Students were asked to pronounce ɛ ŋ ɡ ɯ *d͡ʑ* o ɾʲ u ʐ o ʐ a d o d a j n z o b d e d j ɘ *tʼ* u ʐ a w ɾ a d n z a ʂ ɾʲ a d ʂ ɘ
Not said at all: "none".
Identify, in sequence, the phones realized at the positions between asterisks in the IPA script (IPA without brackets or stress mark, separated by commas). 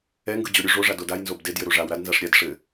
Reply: d͡ʑ, ɾ